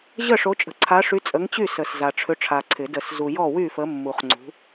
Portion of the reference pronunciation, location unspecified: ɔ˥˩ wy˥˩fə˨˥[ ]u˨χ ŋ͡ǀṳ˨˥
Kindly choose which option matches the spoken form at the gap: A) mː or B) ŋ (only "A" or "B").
A